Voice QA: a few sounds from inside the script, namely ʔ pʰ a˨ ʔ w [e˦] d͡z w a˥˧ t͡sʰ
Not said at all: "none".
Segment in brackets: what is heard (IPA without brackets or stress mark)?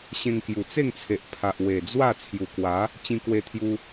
e˨˩